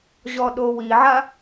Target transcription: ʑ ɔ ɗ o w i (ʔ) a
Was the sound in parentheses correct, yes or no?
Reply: no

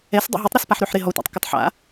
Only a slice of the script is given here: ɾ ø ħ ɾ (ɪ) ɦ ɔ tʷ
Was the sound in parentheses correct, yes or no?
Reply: yes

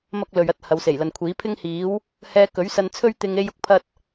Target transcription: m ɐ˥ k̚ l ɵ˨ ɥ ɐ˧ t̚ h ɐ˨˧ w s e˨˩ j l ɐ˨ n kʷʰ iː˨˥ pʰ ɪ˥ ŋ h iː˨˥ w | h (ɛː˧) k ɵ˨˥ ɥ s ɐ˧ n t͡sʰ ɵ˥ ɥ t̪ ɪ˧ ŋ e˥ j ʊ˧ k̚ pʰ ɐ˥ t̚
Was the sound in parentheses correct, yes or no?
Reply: yes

